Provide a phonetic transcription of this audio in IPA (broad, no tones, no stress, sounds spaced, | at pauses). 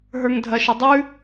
ɦ ə˞ ŋ dʱ ɐ ʃ ə dˤ ʉ